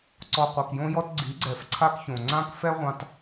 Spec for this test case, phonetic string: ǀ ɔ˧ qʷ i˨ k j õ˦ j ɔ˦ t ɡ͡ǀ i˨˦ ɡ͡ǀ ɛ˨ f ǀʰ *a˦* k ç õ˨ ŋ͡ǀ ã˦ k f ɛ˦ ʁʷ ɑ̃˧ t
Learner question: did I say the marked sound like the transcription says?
yes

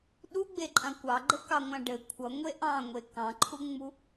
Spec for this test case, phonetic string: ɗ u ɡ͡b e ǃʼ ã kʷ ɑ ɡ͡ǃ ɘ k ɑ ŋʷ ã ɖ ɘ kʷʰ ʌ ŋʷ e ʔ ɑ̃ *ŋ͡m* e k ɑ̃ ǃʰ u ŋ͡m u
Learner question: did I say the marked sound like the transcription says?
no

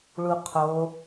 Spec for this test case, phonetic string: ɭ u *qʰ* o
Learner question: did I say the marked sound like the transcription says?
yes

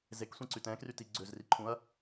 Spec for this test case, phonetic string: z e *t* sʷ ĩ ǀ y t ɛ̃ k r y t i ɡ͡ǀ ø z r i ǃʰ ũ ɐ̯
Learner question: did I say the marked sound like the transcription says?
no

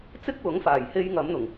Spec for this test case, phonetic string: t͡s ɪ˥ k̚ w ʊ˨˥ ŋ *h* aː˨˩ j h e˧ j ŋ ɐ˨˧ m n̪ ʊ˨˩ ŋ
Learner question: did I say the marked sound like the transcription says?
no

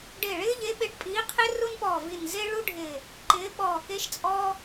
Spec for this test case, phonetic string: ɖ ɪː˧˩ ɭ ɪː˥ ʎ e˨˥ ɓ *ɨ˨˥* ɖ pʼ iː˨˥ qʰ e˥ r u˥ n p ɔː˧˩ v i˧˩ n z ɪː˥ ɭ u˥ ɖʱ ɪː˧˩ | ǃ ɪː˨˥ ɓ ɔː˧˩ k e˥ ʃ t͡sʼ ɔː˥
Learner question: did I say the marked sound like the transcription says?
no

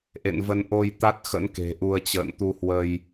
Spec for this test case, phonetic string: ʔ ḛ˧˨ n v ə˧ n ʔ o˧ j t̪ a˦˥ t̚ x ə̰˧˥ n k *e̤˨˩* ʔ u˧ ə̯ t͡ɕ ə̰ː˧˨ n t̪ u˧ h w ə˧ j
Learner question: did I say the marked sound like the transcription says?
yes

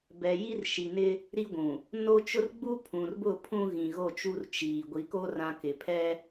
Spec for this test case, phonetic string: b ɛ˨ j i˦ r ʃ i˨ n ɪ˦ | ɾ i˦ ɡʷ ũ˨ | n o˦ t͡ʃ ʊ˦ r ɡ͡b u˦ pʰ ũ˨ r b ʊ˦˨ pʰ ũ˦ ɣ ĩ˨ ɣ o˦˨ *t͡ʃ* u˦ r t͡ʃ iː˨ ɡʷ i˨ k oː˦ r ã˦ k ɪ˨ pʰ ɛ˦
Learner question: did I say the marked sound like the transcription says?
yes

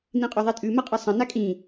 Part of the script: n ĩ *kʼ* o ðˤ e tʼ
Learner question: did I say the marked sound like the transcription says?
no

